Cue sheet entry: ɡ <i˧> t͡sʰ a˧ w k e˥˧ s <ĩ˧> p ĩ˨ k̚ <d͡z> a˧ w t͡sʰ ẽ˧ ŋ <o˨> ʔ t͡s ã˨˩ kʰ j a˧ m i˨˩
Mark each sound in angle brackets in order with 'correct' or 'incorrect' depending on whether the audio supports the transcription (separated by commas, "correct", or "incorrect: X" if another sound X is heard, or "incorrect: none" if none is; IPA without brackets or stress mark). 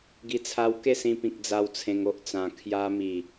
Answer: correct, correct, correct, incorrect: o˦